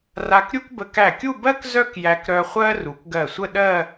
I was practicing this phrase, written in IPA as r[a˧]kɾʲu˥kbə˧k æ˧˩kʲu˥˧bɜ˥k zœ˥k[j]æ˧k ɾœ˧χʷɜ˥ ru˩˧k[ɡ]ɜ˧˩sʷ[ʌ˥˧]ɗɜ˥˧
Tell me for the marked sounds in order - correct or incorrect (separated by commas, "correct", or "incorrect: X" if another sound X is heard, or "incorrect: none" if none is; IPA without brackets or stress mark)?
correct, correct, correct, incorrect: ə˥˧